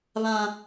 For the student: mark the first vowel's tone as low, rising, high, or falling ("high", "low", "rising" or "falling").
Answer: high